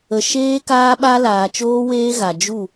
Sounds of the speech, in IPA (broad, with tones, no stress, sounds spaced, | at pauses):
ə˨ ʃ eː˦ k aː˦ ɓ a˦ l aː˨ t͡ʃ oː˦ w eː˦ ɣ a˨ d͡ʒ u˦˨